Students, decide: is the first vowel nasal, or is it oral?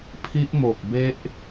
oral